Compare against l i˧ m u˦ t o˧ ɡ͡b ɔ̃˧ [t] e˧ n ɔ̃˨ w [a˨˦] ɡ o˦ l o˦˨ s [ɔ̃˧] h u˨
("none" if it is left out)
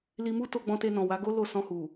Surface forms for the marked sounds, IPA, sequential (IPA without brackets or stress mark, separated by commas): t, a˨˦, ɔ̃˧